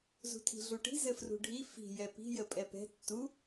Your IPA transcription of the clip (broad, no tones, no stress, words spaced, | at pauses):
zṳtʰi̤ɮuʈi̤ zɘfrṳɖʱi fi̤ jɛpi̤ jəpʼɛpɛ̤ tːu